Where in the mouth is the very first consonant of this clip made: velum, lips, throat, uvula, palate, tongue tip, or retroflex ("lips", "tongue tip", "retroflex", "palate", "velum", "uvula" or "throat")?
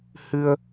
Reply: throat